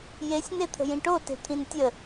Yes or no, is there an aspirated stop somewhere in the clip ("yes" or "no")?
yes